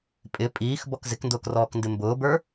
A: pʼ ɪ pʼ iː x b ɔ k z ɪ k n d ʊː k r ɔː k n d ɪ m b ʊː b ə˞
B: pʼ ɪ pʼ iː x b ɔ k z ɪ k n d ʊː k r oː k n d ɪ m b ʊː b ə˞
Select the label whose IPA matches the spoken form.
A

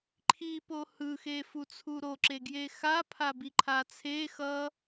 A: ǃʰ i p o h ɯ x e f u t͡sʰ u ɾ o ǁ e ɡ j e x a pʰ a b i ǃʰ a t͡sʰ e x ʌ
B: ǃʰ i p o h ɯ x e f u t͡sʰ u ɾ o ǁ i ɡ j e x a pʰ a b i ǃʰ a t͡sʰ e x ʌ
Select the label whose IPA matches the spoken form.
A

